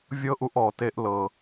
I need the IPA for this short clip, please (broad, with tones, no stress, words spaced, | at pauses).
vʲɤ˦ʔu˧ʔ ɔ˨te˦ʔ lɤ˨